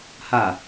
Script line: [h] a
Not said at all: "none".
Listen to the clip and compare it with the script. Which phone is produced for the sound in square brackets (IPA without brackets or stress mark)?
h